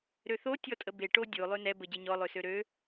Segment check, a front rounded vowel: present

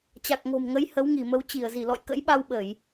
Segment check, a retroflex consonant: absent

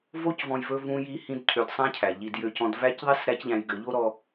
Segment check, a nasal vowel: present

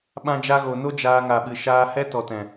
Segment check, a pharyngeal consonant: absent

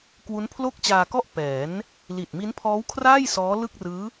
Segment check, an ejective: absent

